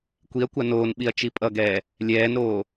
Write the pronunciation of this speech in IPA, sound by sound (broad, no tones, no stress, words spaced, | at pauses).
kʷiɐ̯kʷa noːnɓiɐ̯ t͡ʃipʼʌɡɛː | lʲɛːnɾoː